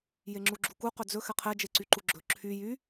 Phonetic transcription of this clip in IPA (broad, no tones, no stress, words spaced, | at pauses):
jeŋ͡ǁuɡ͡ǁuku qɵd͡zɵ xɛqʰɛ d͡ʒeǀyǃuɡ͡ǁɵ ǁʰy jy